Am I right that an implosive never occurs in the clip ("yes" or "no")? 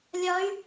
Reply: yes